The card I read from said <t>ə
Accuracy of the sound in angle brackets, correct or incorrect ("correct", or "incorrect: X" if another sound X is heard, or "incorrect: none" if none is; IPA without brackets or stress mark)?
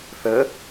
incorrect: θ